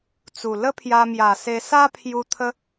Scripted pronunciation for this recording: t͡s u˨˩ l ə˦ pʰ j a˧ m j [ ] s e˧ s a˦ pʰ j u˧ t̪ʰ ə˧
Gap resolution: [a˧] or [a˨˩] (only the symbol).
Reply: a˨˩